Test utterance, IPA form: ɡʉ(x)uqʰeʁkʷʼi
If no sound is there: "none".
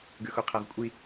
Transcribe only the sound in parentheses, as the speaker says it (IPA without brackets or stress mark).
x